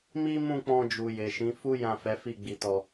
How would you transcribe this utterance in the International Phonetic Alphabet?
mi˦ mũ˦˨k͡pɔ̃˧d͡ʒu˨ je˨ʃĩ˨˦ fu˦ jã˦˨ fɛ˨˦fi˦˨ɡ͡bi˧tɔ˧

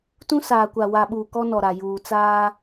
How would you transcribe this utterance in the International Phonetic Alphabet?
tũ˦ saː˨kʷa˨wa˨ɓuː˨ kɔ˦nɔ˨ɾa˨ juː˨t͡saː˦

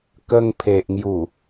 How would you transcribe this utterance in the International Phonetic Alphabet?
kə˧ŋpʰe˨ʔŋju˨˩

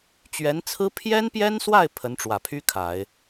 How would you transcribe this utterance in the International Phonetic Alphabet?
t͡ɕɥɛ˧˥nt͡sʰɹ̩˥ pʰjɛ˥npjɛ˥nswa˥˩ɪ̯ pʰə˧˥nʈ͡ʂwä˨˩pʰy˥ kʰa˨˩˦ɪ̯

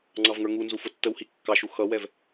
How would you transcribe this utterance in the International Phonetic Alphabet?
ŋ͡ǀɑvŋə˞ŋunzu fʊtːəwhi kːɑʃu xʌwɛv

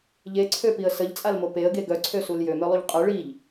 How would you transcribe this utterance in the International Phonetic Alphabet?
ʎeǀʰøpiə̯ səʎt͡sʼalmo peə̯ɡe ɡœǀʰøsul jømœlˠuʎ qʼœ ɭiʎ

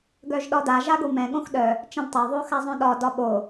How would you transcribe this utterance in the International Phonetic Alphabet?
ɡœʒɗɒda ʒaɡomɛ̃ ɠõxɗœ | t͡ʃɛ̃dtˤa ðˤoxazˤœ̃ɗɒ dɒɓo

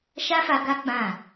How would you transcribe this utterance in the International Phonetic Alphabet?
ʃa˦fa˧ ɡa˦ ɡ͡bã˦˨

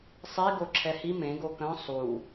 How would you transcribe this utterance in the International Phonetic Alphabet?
sˤi ɡoǁʰɛhi mẽ ɡokœ̃ sˤu

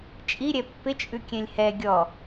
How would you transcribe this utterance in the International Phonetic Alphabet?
t͡ʃʼiɾʲɛ pːɪt͡ʃʼʉkʲɛ̃lʲ hɛ ɡʲɔ

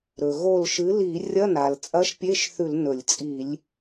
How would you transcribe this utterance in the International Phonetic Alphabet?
ɾɵ˩ ɣo˧˩lʃɨ˩˥ li˧˩˧rʲɐ˧˥˧ na˩l t͡sʼɐ˧˥˧ʃpʲe˧˥˧ʃθʉ˧˩˧l nɵ˧˩˧lʲ t͡sʼi˧˩˧lʲ

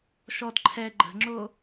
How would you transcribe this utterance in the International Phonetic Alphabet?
ʃɔd ǃʰɛ ɡ͡ǃə̤ŋ͡ǁo

